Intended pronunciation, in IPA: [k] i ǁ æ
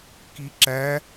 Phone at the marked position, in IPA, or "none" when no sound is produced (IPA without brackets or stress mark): k